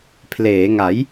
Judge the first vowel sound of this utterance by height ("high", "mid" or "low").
mid